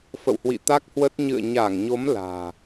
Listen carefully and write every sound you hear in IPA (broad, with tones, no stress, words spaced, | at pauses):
fə̰˧˨whwḭ˧˨ t̪a˦˥k̚hwə˦˥t̚ ɲɨ̰˧˨ə̯ɲa˧˩ŋɲo˨˦m la̤ː˨˩